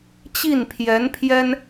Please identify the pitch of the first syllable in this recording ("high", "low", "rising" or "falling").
falling